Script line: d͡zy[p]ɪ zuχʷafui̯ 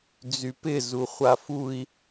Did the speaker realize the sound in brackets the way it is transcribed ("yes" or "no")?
yes